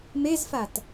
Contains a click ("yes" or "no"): no